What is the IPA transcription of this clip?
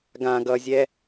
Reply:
ɡ ã ɡ ʌ zʲ ɛ

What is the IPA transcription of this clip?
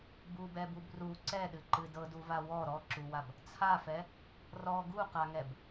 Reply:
b u b ɛ b u b r u ǀ ɛ ɗ ɨ ǃ ɨ d ɤ d u v a w ɔ ɾ ɔ ǁ u w a b | t͡sʰ a f ɛ | r ɔ ɡ u q a ŋ ɛ b

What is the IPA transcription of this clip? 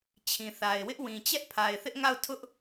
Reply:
t͡ɕʰ ĩ˨ θ a˨ ɪ̯ w ɪ˦ ʔ w ĩ˨ t͡ɕ ɛ˦ ʔ pʰ a˨ ɪ̯ θ ɪ˦ ʔ ŋ a˦˨ ʊ̯ tʰ ʊ˦ ʔ

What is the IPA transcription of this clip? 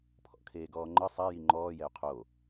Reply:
pʰ ɔ̰ kʰ eː ɡ ɔː ŋ͡ǃ ɤ sˤ a j i ŋ͡ǃ ɔː j ɛ u̯ qʰ o

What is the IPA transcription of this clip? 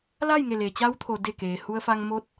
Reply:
l a˥˨ j ŋ e˧˩ l eː˩ t͡ɕ a˧˥ w t̪ʰ o˩ d e˧˩ k eː˩ h u˧ ə̯ f a˧ ŋ m o˧˥ t̚

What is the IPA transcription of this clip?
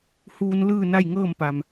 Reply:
h uː˧ n l ɯː˥˨ n a˥˨ j ŋ ɤː˥˨ m p a˩ m

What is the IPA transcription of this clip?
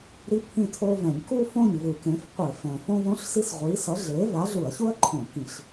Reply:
ɾ i˥ pʰ ĩ˥˨ tʰ o˥ v ɛ̃˧˩˧ ɲ k u˥ f õ˥˨ ɲ v ɯ˨˩ k ẽ˨˥ f qʷ e˧˩˧ f ɛ̃˨˩ f õ˥ v õ˥ ɬ s i˥ s ʁʷ i˨˥ s ʌ˨˥ ɮ e˨˥ v a˨˥ ɮ u˧˩˧ ɐ̯ ç u˥ ɐ̯ ǃʰ õ˧˩˧ k ĩ˧˩˧ ɬ

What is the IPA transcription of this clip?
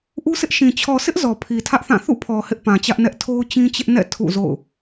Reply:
ʔ u˦ sʰ ɪ˦ ʔ ʃ ĩ˨ t͡ɕʰ ɔ˨ sʰ ɪ˦ ʔ z ɔ˨ pʰ i˨ tʰ ä˦ ʔ θ ã˦˨ θ ṵ˦˨ pʰ ɔ˨ h ɪ˦ ʔ p ã˨ t͡ɕ ä˦ ʔ n ɛ˦ ʔ tʰ o˦ ʊ̯ t͡ɕ ĩ˦ t͡ɕ ɪ˦ ʔ n ɛ̰˦˨ tʰ ṵ˦˨ z o̰˦˨ ʊ̯

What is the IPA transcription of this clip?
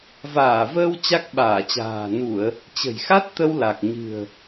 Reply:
v aː˧˩ v əː˧ w t͡ɕ a˦˥ k̚ ɓ aː˧˩ t͡ɕ a̤ː˨˩ n u˧˩˨ ə̯ | t͡ɕ ə̤˨˩ j x a˦˥ t̚ t̪ ə˧ w l a˨˩ k̚ ɲ ɨ̤˨˩ ə̯

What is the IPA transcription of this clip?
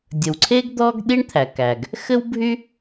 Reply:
dʲ ə˩ w ǀʰ e˥ ɡ d̪ ɔ˥ ɡ ɗ i˥ ɳ t̪ʰ æ˩ k æ˩ ɡ | x ɘ˥ w bʱ y˥

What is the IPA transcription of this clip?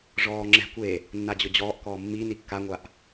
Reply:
ʐ ɔː ŋ͡ǁ ɛ̤ kʷ e | nː a d͡ʑ ʊ d͡ʑ ɔː ʔ k ɔː mː i n i kː a ŋʷ a ʔ

